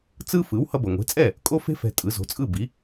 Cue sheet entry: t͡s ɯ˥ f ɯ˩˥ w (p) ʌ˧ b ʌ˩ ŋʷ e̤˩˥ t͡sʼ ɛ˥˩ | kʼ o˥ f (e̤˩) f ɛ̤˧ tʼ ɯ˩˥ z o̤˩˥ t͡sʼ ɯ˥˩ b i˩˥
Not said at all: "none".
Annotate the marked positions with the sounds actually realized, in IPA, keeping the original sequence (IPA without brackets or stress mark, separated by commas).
h, e̤˥